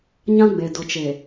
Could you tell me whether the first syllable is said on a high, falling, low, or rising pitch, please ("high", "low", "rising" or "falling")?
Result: high